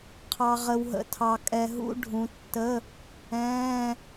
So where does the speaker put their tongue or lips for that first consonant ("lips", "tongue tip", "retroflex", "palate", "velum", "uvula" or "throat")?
uvula